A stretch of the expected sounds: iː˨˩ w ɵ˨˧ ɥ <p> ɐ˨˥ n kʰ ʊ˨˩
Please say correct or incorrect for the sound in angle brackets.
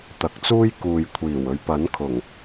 correct